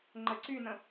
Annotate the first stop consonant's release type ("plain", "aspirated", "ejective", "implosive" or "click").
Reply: click